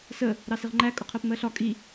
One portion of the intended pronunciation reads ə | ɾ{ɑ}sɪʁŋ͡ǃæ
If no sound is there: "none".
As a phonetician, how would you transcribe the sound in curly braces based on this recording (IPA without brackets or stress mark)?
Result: ɑ